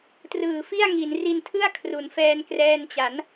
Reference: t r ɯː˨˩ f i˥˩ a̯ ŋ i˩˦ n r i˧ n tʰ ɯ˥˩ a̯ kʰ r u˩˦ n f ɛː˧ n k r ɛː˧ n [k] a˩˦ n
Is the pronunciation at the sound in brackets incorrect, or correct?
incorrect